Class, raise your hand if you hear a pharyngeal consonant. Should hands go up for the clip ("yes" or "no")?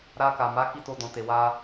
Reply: no